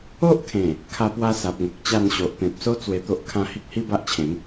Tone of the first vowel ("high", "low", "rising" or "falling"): high